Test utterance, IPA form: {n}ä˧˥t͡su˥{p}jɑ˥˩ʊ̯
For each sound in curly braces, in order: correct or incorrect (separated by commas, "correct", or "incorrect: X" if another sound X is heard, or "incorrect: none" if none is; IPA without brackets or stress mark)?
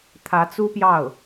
incorrect: t̪ʰ, correct